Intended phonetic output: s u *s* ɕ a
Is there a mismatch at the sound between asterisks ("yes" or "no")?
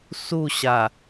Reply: yes